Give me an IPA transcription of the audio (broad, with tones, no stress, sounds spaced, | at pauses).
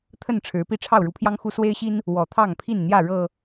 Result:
t̪ʰ ə˥˨ n ʈ͡ʂʰ ɻ̩˨˦ p i˥˨ ʈ͡ʂʰ ɑ˥˨ ʊ̯ ɻ u˨˦ pʰ j ɑ˦ ŋ x u˦ s w e˦ ɪ̯ ɕ i˦ n | w ɔ˨˩ t̪ʰ ɑ˥˨ ŋ pʰ i˥˨ n n̪ j ä˥˨ ɻ ɤ˨˩